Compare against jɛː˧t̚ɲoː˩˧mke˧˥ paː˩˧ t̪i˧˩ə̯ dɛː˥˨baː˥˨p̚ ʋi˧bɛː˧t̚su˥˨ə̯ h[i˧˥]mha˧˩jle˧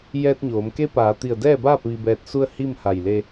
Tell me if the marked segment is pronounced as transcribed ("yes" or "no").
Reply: no